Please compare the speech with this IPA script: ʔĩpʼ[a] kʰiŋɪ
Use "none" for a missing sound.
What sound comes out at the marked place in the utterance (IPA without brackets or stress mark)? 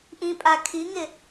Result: a